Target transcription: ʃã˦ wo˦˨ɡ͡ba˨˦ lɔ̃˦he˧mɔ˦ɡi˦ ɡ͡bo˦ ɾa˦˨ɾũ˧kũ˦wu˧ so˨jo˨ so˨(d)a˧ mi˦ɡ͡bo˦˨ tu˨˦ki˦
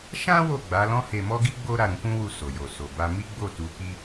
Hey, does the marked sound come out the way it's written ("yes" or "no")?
no